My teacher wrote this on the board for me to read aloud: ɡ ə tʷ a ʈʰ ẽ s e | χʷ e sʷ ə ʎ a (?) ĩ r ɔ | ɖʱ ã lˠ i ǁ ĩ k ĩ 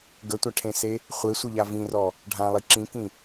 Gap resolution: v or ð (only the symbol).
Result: v